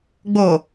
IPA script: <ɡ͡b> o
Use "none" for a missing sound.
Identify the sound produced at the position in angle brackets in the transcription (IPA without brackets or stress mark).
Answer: ɡ͡b